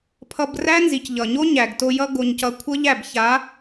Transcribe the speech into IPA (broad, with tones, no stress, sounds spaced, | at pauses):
pʰ ʌ˧ b r æ˦ n z i˨ c ʎ ʌ˨ ɲ o˦ ɲ æ˨ ɡ t o˧ j ʌ˦ ɡ o˧ ɲ c ʌ˧ kʷʰ ʌ˦ ʎ æ˦˨ b ç a˨˦